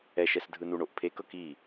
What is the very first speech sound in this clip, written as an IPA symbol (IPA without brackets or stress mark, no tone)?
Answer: ɛ